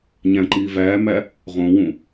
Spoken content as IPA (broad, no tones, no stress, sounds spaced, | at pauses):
ɲ æ̃ ǃ iː v æː m æ | ʁ õ w ũ